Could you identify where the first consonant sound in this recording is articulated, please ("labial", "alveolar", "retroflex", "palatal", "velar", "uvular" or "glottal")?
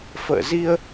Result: labial